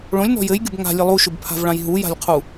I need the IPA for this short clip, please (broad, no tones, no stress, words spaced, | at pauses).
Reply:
ɭõlʲnɔ̤ jɘjɡʲʊb ŋa̤lʲɘ lˠuʃʊbpʰa̤vɭãj ɦuja̤lʲqʰu